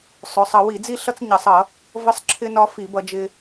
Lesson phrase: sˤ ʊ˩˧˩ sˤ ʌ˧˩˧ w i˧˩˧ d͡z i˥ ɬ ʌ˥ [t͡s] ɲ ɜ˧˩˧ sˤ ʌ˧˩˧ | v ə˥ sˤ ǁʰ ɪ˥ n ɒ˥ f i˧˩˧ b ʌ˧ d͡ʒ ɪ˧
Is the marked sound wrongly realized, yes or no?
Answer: no